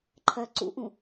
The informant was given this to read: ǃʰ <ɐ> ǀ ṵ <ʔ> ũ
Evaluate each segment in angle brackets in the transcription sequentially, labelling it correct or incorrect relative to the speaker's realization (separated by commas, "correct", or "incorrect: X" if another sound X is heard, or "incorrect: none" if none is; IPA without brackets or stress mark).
correct, correct